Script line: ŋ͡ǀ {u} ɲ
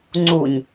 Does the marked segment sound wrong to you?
no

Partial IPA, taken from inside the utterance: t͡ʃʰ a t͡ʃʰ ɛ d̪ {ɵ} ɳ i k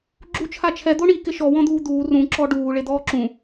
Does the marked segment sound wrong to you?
yes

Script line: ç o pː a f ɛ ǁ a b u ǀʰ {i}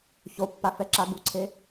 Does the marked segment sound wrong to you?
yes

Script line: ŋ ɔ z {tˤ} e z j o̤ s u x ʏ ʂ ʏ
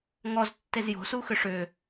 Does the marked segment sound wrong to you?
yes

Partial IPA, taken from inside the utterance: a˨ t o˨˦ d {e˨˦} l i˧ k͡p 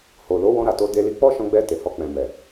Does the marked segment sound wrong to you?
yes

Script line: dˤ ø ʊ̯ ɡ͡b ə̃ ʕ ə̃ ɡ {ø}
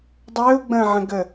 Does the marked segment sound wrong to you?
yes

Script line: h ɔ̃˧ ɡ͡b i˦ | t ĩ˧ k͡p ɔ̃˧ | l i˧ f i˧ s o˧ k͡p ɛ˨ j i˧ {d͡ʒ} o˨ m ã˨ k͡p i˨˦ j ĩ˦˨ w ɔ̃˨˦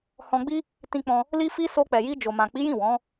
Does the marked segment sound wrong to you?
no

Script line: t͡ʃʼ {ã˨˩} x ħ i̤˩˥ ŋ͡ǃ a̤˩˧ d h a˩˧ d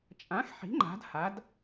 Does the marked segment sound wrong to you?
yes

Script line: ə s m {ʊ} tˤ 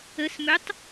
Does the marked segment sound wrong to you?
yes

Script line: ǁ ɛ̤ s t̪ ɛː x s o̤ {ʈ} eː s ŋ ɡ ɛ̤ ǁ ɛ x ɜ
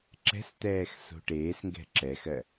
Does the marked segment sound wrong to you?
no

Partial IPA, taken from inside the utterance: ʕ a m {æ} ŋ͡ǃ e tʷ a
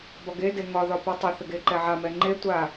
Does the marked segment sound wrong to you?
yes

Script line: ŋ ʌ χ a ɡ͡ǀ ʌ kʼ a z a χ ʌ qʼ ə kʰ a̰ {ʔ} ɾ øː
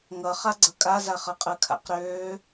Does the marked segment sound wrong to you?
yes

